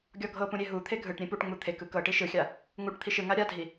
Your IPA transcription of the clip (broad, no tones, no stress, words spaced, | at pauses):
ɡʲɔɡʱɤpũ ɾʲeɦut̪ʰe ɡʱɯʈ ɾʲẽpuʈŋ͡mu t̪ʰekɯ kɤʈi ʃɯxʲa | ŋuʈ t̪ʰiʃɯŋa ɾʲadʱi